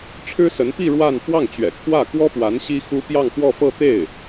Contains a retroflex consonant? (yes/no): yes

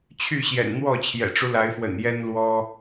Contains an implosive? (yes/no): no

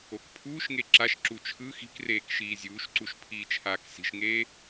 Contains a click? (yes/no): yes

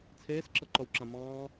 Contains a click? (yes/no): yes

